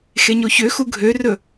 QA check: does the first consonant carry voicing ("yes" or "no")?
no